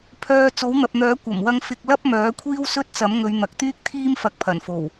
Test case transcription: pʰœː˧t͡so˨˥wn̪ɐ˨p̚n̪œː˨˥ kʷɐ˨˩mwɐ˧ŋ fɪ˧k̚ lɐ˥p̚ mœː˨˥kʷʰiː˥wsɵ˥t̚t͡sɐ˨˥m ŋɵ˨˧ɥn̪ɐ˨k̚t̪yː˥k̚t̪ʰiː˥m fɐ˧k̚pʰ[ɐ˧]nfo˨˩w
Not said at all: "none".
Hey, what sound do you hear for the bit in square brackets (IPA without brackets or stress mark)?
ɐ˨˩